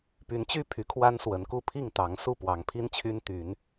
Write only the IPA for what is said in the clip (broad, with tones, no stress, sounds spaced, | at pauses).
p y˨˦ n t͡ɕ y˦ pʰ y˨˦ kʰ w a˦ n s w ə˨˦ n k u˦ pʰ i˥˨ ŋ t̪ ɑ˨˦ ŋ s u˥˨ p w ɑ˨˦ ŋ pʰ i˦ n t͡ɕʰ y˦ n t̪ y˨˦ n